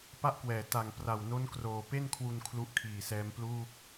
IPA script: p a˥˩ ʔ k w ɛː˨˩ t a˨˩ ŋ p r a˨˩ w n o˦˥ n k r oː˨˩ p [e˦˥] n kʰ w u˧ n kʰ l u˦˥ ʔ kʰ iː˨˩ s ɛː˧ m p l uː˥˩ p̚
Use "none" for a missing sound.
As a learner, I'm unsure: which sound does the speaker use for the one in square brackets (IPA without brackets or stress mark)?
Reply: e˥˩